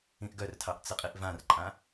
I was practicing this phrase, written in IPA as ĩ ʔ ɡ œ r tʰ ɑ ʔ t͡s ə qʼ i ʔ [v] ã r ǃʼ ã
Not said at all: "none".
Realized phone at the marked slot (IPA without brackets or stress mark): v